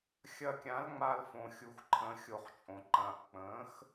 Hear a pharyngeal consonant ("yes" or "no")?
no